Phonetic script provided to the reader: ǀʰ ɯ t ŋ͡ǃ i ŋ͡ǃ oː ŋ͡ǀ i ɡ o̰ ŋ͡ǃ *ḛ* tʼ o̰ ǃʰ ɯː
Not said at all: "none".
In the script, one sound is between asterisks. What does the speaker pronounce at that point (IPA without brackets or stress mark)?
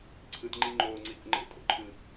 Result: ḛ